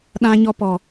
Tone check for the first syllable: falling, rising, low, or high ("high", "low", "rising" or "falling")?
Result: high